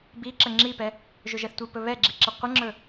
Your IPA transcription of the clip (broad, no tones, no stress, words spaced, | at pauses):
biǁə ŋ͡ǁipɛ | ʒɵʒɛθtʷipɵ βɛɡ͡ǁi ǁəqʷəŋ͡ǁɵ